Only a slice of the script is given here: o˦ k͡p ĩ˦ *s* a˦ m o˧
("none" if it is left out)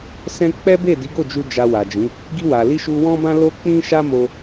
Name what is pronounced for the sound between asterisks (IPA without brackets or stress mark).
ʃ